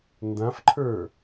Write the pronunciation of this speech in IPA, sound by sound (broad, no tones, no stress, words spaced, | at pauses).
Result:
ndãfǃʰə˞